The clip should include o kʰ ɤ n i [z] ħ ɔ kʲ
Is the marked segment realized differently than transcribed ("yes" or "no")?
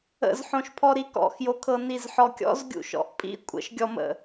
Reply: no